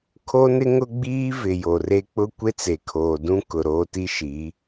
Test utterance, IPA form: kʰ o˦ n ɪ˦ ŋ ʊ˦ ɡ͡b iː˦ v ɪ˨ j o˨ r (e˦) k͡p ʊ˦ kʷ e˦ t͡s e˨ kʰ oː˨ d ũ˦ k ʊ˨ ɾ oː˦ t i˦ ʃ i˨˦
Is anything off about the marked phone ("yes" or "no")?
no